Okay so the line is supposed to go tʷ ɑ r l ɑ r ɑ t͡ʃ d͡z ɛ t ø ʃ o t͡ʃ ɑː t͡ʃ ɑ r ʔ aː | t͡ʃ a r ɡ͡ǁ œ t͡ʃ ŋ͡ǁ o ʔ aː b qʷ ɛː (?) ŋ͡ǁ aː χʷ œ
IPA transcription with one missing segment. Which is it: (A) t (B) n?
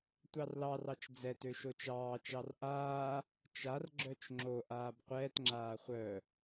A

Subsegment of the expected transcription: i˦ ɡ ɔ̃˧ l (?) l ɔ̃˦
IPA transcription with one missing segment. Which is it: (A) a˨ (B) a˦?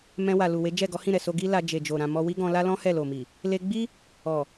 B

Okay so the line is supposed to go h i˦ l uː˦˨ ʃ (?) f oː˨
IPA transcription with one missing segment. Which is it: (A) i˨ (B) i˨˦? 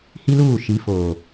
B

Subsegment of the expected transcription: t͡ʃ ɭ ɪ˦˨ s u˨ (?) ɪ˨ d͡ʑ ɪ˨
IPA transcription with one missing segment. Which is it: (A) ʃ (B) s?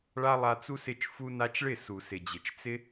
B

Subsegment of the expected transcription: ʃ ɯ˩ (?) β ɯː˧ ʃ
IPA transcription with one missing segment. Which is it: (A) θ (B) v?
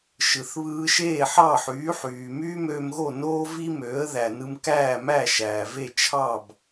A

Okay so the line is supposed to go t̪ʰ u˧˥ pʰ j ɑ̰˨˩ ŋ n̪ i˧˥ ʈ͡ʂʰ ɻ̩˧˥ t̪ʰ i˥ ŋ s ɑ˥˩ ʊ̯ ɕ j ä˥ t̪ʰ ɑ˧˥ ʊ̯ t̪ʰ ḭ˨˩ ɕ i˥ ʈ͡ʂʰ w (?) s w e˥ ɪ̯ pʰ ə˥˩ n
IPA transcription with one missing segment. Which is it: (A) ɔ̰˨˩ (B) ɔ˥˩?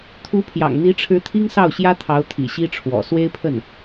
A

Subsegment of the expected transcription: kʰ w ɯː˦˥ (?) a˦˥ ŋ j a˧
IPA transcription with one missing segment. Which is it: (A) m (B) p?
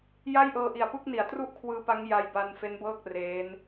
B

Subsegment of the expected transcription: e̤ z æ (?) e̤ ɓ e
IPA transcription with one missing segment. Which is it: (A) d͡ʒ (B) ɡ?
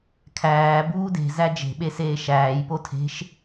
A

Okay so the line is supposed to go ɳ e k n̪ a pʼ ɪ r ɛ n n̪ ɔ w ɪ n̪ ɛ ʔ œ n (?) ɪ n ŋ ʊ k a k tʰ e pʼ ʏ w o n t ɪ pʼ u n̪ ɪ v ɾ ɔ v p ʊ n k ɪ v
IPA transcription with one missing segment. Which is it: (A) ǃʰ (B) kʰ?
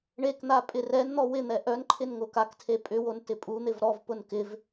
A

